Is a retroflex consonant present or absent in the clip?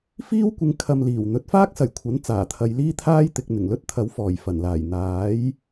absent